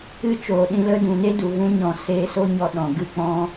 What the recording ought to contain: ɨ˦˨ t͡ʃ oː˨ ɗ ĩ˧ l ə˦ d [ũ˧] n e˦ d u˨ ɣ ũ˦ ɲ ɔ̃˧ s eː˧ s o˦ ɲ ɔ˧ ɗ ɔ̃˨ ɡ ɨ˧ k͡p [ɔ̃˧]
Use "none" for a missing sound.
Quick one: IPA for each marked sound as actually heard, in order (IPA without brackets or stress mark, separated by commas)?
ũ˨, ɔ̃˦